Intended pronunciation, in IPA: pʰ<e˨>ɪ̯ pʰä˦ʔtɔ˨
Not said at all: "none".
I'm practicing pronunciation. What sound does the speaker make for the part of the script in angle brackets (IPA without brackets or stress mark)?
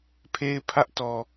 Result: e˦